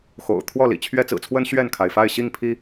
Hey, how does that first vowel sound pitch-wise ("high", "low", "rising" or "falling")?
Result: low